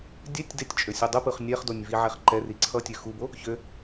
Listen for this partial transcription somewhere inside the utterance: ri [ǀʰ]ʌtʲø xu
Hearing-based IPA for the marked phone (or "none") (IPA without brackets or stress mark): ǀʰ